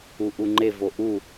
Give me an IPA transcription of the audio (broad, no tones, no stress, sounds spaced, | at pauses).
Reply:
u ʔ u ŋ͡ǃ e v o ʔ u